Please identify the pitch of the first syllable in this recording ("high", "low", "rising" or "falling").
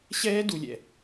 high